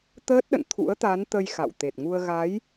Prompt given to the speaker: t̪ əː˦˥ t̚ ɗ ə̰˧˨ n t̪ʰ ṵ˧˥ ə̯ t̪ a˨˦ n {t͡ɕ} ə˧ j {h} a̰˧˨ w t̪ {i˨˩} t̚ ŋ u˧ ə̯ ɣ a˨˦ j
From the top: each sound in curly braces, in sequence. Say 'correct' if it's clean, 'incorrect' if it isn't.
incorrect: t̪, incorrect: x, incorrect: e˨˩

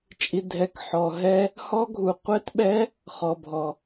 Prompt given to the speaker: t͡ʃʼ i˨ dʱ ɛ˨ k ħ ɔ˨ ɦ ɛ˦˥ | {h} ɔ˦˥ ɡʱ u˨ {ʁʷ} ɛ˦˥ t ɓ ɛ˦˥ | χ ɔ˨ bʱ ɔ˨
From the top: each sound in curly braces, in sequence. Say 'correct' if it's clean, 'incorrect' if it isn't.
correct, incorrect: qʷ

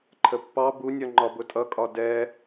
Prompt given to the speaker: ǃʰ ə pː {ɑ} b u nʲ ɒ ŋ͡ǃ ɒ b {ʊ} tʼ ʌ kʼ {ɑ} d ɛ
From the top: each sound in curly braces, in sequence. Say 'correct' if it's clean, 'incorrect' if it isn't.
correct, correct, incorrect: ɒ

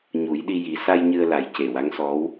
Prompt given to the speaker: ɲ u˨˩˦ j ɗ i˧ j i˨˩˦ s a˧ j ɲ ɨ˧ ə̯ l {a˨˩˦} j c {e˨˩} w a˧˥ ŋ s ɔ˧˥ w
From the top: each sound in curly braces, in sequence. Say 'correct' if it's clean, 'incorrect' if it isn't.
correct, correct

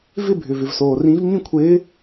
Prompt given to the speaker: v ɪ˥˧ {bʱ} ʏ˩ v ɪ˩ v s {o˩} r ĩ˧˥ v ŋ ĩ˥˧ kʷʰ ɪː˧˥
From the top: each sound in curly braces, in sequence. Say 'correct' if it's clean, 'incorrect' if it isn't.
correct, incorrect: oː˩

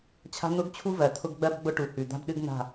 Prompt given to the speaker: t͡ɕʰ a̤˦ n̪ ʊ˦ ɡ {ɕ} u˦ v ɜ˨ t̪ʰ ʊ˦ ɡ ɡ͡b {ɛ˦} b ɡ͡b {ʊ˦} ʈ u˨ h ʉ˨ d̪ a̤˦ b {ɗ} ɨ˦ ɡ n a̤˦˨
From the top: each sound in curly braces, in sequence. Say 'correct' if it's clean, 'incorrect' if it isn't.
incorrect: t͡ɕʰ, incorrect: ɜ˦, correct, correct

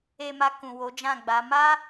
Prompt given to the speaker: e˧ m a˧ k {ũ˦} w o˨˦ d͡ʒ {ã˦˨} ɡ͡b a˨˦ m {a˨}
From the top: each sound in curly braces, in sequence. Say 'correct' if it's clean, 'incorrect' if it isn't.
incorrect: ũ˨, correct, incorrect: a˦

